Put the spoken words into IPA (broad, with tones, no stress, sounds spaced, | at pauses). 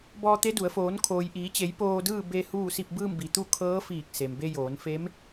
b ɔː˧ t̪ e˧˥ d u˩˧ ə̯ f oː˩˧ n kʰ oː˩ j ʔ iː˩˧ t͡ɕ e˩˧ j p oː˧ d ɯː˥˨ b e˧ h uː˥˨ s i˥˨ p̚ b ɯː˥˨ m b i˩ t̪ u˥˨ kʰ ɤː˧˥ f iː˧˩ k̚ s e˩ m b e˧ j oː˩˧ n f e˧˥ m